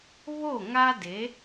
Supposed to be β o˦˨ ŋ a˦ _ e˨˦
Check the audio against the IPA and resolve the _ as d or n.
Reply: d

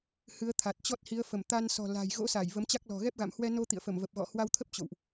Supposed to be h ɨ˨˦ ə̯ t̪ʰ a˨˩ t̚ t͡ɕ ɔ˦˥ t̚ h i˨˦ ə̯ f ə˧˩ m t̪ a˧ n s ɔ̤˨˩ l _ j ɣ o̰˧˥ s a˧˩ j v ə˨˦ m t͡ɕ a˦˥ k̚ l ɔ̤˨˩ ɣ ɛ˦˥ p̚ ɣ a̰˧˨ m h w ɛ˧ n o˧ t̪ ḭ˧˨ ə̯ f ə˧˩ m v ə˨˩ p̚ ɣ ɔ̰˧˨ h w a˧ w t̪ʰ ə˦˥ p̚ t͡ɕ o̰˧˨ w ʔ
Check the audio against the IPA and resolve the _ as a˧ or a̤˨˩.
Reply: a̤˨˩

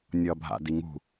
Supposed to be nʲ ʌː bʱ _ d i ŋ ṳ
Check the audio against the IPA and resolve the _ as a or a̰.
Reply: a̰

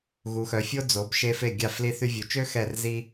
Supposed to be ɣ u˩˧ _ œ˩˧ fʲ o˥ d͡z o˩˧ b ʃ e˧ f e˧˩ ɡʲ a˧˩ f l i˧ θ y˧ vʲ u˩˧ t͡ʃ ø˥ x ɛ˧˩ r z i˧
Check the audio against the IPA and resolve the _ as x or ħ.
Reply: x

